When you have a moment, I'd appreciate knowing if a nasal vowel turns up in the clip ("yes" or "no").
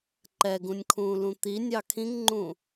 yes